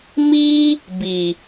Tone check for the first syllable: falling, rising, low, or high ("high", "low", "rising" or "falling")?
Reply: high